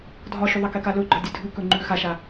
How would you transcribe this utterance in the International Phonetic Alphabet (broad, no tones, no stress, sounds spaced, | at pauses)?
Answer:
dʱ ɒ ʃ ʉ ðˤ ɛ k ɛ k a l ɵ ɡ͡ǃ ɒ dʲ ɨ dʱ ʉ k ɵ ŋ͡ǃ ʉ x a ʃ a